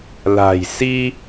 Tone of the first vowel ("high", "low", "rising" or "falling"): low